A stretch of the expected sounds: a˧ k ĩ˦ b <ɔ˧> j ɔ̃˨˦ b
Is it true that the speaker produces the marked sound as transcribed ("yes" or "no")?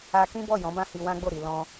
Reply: no